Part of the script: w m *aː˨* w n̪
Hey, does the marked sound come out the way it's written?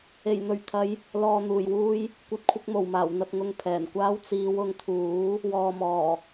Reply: no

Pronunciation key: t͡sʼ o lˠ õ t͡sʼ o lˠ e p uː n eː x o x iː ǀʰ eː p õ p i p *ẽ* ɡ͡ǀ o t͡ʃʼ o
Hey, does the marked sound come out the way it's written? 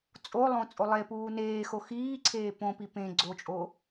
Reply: yes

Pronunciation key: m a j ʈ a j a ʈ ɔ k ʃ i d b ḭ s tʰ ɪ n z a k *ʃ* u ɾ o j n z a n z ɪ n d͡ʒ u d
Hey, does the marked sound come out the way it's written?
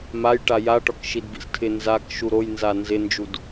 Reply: yes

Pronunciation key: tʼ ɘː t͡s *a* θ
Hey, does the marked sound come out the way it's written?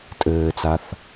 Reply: yes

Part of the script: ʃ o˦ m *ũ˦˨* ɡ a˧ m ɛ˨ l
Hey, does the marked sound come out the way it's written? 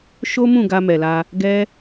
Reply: yes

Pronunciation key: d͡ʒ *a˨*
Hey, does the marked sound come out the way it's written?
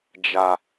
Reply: yes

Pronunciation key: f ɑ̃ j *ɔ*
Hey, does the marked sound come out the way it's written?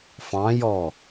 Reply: yes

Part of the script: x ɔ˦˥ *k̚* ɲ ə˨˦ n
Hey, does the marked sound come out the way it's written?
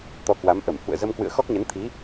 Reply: yes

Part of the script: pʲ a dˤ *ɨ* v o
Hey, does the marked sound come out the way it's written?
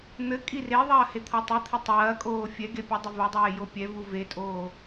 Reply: yes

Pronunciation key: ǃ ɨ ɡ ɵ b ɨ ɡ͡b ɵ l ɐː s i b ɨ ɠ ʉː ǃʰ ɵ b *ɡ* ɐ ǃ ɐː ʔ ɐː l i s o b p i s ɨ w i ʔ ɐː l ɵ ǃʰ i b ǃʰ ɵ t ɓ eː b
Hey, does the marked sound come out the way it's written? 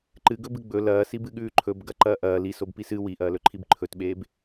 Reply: yes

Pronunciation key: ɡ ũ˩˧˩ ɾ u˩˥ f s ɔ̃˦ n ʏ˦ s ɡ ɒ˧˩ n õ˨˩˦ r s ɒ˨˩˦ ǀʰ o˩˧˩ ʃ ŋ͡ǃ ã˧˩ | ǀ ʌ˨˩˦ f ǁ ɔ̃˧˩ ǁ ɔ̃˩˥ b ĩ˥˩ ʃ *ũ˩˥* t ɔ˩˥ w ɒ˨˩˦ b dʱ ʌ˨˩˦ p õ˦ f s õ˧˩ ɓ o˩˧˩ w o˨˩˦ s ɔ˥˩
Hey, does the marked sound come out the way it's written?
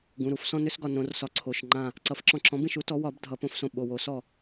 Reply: no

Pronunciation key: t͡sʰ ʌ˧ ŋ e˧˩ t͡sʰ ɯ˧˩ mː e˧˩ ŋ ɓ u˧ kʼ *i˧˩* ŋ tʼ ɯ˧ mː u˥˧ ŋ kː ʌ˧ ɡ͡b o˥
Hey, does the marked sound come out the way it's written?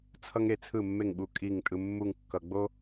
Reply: yes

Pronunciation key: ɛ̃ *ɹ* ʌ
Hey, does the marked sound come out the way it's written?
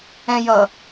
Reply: no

